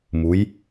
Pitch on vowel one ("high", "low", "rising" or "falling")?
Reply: rising